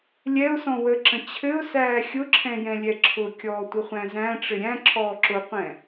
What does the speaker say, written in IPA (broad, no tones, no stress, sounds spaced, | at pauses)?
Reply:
lʲ ɛ ʊ̯ s ɔ̃ w ə ǁ ə̃ t͡ɕʰ ɘ ʊ̯ s æː xʲ ʊ ǁʰ ɛ̃ j ɛ̃ lʲ ɛ ǁʰ ʊ kʲ ɔː tʷ ə χʷ æ̃ z æ̃ ʈ͡ʂ ɘ ɾʲ æ̃ ǁʰ ɔː ǁ ʊ qʷ ɛ̃